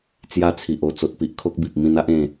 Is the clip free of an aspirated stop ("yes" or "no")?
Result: no